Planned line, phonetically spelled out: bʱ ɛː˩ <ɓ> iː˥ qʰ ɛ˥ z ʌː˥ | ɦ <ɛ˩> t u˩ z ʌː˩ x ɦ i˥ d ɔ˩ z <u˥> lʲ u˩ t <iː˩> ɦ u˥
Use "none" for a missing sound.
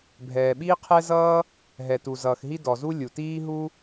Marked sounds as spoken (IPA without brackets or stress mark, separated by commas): ɓ, ɛ˩, u˥, iː˥